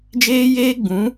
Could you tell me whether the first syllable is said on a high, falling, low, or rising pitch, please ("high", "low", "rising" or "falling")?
high